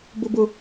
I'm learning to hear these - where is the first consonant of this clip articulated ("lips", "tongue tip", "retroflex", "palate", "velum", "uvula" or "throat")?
lips